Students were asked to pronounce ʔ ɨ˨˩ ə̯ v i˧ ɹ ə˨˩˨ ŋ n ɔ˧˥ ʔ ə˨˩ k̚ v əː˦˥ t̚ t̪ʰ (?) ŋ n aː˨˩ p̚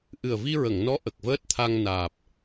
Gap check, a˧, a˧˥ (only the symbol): a˧